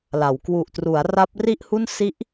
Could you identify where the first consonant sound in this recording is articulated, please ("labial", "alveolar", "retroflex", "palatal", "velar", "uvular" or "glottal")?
alveolar